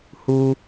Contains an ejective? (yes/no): no